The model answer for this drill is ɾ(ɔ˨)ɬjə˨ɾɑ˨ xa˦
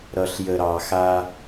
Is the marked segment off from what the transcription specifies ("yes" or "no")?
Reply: yes